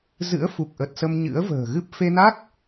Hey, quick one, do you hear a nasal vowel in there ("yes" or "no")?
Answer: no